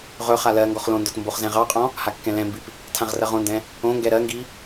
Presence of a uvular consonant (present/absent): present